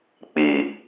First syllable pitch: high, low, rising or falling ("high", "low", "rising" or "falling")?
low